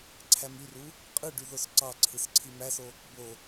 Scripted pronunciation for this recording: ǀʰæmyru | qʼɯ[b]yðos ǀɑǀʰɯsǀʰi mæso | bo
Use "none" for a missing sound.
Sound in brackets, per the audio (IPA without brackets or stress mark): ɖ